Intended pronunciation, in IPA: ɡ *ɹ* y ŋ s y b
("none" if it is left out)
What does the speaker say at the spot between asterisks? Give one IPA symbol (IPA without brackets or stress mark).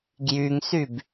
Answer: j